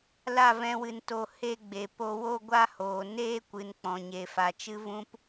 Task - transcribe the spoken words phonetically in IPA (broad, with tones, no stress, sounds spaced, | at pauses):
l a˦˨ v ɛ̃˦ w ɨ˧ n t o˧ h e˦ ɡ͡b e˨ p o˧ w o˦ ɡʷ a˦ h oː˨ n eː˦ kʷ ɨ˨ n k͡p ɔ̃˨ ɲ e˨ f a˨ t͡ʃ ɨ˦ v ũ˦ p